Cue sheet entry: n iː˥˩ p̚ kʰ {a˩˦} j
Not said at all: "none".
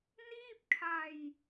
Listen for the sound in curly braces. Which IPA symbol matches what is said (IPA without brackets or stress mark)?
a˧